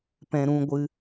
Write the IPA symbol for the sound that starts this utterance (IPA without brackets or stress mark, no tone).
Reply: p